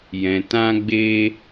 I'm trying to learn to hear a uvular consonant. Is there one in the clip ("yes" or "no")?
no